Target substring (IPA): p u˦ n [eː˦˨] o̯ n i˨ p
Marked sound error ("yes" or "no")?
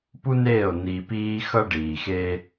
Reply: no